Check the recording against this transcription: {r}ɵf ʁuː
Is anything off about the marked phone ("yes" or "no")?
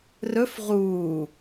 no